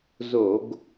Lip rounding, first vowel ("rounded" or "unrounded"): rounded